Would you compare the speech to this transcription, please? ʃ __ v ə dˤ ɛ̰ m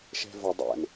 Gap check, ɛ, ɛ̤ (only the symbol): ɛ̤